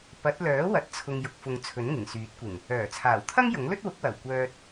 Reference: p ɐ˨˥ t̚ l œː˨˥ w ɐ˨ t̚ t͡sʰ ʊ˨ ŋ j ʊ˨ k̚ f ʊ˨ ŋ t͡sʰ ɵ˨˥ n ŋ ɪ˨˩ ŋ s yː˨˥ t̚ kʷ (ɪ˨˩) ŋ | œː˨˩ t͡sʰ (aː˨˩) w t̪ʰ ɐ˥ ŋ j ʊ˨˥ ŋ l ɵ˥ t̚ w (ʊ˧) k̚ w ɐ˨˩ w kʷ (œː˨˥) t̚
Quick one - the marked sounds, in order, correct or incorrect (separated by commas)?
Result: correct, correct, incorrect, incorrect